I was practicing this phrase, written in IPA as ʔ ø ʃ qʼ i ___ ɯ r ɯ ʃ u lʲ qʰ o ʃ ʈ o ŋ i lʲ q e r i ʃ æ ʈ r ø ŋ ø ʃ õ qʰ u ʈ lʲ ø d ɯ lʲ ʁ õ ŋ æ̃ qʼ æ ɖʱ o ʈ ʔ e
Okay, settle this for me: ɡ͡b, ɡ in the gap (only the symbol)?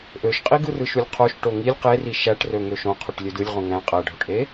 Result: ɡ